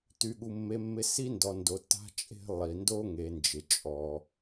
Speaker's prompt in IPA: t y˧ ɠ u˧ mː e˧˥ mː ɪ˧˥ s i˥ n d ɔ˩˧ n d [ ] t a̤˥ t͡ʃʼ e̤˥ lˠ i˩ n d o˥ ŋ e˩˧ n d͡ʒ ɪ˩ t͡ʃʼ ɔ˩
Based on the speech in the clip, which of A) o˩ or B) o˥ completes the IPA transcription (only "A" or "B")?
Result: A